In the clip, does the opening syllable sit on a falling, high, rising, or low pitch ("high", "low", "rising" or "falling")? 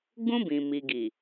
high